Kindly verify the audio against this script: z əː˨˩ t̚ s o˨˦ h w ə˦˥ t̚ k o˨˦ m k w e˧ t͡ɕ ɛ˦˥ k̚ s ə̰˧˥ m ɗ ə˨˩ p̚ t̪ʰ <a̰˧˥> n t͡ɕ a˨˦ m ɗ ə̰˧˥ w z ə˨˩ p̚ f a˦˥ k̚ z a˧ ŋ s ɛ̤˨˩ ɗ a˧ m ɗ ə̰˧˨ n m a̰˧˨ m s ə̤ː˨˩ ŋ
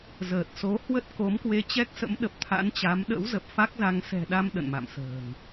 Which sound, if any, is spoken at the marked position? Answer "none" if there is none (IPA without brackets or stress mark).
a̰˧˥